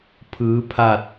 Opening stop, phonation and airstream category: aspirated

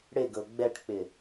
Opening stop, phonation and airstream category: plain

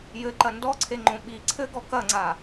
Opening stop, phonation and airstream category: click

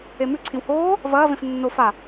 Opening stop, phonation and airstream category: click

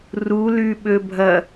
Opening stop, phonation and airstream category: implosive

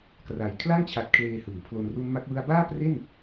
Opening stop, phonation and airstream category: plain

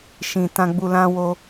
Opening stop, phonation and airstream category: plain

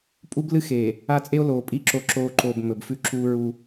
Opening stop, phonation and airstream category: ejective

